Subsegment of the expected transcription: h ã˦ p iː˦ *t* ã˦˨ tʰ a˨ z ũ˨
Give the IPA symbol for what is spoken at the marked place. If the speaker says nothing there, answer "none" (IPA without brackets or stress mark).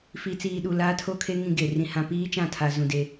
t͡ʃ